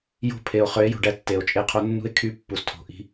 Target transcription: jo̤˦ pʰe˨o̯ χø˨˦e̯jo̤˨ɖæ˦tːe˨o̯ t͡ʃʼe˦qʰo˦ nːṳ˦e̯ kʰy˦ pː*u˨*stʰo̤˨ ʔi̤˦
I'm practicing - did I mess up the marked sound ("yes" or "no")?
no